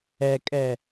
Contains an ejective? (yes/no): yes